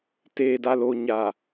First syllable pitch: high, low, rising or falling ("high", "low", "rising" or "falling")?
low